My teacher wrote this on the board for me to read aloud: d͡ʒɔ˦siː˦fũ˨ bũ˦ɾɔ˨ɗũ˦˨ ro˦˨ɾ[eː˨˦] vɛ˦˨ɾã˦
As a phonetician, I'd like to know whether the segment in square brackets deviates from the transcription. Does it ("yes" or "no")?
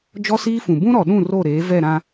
no